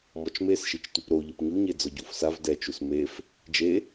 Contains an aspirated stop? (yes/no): no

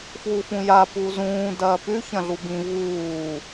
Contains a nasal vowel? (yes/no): yes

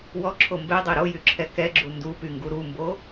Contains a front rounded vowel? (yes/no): yes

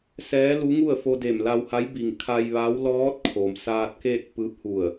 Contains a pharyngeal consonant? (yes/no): no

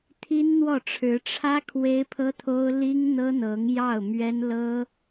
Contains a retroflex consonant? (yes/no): yes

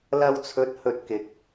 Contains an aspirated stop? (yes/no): yes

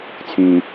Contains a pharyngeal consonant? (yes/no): no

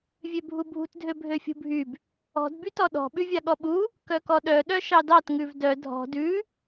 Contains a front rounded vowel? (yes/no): yes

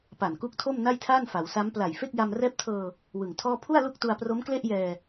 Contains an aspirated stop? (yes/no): yes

